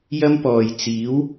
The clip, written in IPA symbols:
j ɐ˥ m p ɔː˨ j t͡s iː˨˥ w

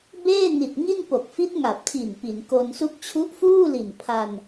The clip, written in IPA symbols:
b eː˥˩ n i˨˩ t̚ ŋ i˥˩ n p o˨˩ k̚ f i˦˥ t̚ ŋ a˨˩ p̚ tʰ i˨˩ n p i˩˦ n k o˧ n s u˥˩ k̚ t͡ɕʰ u˦˥ ʔ f uː˥˩ l i˨˩ n pʰ a˧ n

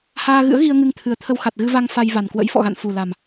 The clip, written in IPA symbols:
h aː˧ ɣ ɨ̰˧˥ ə̯ ɣ i˧ ə̯ ŋ ɨ˧ ŋ t̪ʰ ɨ˨˩ ə̯ t̪ʰ ə˧ w x a˨˩ t̚ ɣ ɨ˧ v a˧ ŋ f a˧ j v a˨˩ n k w ə̰˧˥ j f ɔ̰˧˨ ɣ a̰˧˨ n f u˨˩ l a˨˩ m

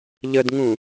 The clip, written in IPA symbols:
ʎ ə d ŋ ũ

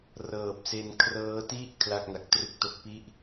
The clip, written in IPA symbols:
r ɤː˨˩ p̚ s e˧ n kʰ r ɤː˦˥ t i˥˩ ʔ kʰ l a˥˩ k̚ n a˨˩ k̚ t r ɯ˥˩ k̚ t o˦˥ k̚ p i˥˩ ʔ

